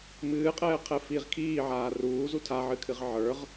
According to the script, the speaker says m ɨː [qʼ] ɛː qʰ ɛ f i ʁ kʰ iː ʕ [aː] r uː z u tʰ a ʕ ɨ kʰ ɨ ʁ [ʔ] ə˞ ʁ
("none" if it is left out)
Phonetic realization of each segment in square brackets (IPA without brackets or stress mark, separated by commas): qʼ, aː, ʕ